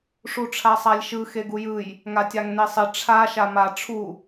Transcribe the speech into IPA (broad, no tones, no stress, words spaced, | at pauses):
ʂuʈ͡ʂʰasˤalʲʃɯ xeɡujɯj | ŋatʲaŋnesˤɪ ʈ͡ʂʰa ʃama ʈ͡ʂʰu